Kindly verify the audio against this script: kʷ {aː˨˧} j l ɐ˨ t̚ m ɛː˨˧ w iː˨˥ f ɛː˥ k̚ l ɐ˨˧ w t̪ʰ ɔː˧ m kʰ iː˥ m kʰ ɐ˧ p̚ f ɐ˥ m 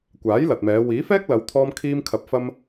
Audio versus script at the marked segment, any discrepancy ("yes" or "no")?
yes